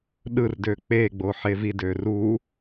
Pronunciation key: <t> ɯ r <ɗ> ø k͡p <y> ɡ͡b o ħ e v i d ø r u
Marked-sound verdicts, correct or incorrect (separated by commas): incorrect, incorrect, incorrect